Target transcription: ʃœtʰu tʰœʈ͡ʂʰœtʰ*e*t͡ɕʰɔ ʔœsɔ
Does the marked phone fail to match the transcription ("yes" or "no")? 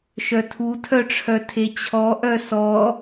no